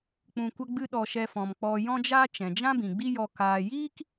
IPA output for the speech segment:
k͡pũ˨kʷə˧ ɡ͡bɨ˧ ɗɔ˧ʃɛ˧fɔ̃˨m k͡pɔ˨ jɔ̃˦d͡ʒaː˦ t͡ʃɛ̃˨d͡ʒã˦bĩ˨ ɡ͡bi˦jɔ˧ kaː˧ jiː˦k

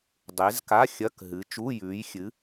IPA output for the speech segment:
dˤe˨˦zka˧˥˧ xʲɐ˧˥˧kɦɨ˨˦ t͡ʃu˧˥˧jʉː˨˦j xʲɨ˨˦

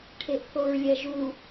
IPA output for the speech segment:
ʈʰeʔθoɹlʲɛʒu

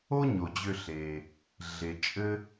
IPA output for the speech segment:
o˦ɲo˩d͡ʑʏ˨ ɬe˩ | ɮe˩t͡ʃʼɘ˦

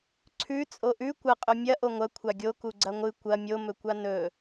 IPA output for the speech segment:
ǀʰʉ t͡sʼoʔʉ kʷɐqʼɵ mʲɐ ʔoŋʷɐ kʷʰaɡʲo kuɡ͡ǀɐŋʷɨ kʷɐ mʲomɵkʷa nɵ

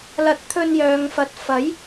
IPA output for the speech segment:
lɐ˨˥t̚t̪ʰɵ˧njœː˨ŋfɐ˨˥t̚ fɐ˨˥j

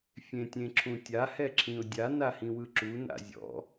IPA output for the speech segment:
fʲẽtʲẽǁʰũtʲa hɛǁʰĩʊ̯dʲa nahĩwɯǁu na̰zʲɔ̰

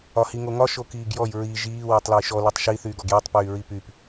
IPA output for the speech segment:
ɒhiŋoŋɒ ʃokiːɡjɔj ɹi ʒiː wotˤlojʃɔ litˤʃi θyːɡɔɡjitˤ pyːɹipyp

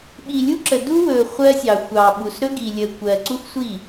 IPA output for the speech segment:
ɓi˨lʲu˦ǁə˨ du˦wɵː˨ χʷɜ˦sʲɑ˨ xʷɑː˨ɓu˨s ɾɵ˦ɡi˨lʲəː˨ kʷɜ˨ǀu˦xʷsʷi˦˨

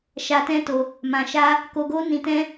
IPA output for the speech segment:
ʃa˧tɛ̃˦to˧ | mã˧ʃa˦ | ko˦ ɡo˦ nĩ˧ tɛ̃˦

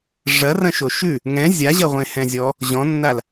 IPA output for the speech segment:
ʐɐrɐ̃ʃo ʃʉ | ŋɛ̃ zʲaʑɐʁʷẽ hɛ̃zʲɔ | ʑɔ̃nːal

